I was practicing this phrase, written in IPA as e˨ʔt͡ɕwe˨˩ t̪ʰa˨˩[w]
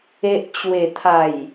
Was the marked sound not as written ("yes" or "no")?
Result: yes